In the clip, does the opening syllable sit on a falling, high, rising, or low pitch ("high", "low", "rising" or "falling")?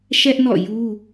high